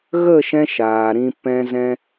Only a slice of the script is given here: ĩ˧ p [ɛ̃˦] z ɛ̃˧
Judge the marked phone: incorrect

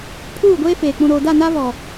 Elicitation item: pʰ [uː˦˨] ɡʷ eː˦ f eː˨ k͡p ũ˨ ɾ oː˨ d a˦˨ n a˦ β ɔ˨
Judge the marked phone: correct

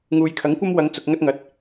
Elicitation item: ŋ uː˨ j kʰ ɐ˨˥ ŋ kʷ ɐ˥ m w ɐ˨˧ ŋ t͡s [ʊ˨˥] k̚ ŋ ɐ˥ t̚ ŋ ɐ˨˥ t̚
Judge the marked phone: incorrect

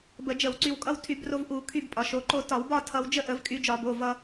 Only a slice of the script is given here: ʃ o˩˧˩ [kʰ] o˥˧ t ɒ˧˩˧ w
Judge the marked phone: incorrect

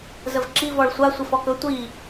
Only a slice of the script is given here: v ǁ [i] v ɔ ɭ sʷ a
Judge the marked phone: correct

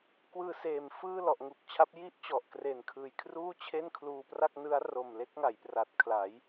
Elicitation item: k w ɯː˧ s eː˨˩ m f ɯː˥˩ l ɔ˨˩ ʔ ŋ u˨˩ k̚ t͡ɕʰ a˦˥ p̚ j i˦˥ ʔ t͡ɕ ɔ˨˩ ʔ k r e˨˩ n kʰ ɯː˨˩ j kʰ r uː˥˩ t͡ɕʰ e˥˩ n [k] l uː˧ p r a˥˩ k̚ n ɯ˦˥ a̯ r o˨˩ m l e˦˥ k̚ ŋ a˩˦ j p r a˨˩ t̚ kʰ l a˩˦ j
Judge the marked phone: incorrect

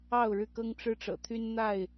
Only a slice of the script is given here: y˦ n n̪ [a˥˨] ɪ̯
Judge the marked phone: correct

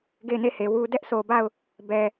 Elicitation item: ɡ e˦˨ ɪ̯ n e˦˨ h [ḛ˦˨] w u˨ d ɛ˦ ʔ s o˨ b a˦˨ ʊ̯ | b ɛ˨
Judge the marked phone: incorrect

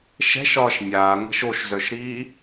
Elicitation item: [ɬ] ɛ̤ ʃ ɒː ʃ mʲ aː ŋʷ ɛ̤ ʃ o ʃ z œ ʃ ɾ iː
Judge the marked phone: incorrect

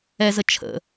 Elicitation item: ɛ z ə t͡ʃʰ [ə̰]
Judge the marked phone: correct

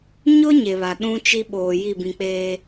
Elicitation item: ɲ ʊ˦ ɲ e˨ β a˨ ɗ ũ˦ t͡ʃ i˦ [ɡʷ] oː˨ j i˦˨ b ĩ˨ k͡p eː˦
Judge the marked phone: incorrect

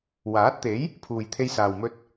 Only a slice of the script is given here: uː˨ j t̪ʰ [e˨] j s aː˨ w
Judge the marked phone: incorrect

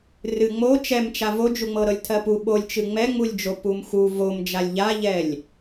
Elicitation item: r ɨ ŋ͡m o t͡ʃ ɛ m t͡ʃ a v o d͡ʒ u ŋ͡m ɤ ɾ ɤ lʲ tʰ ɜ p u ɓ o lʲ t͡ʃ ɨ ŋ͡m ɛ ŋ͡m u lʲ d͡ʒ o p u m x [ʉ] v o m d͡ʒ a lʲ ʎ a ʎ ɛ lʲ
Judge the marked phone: incorrect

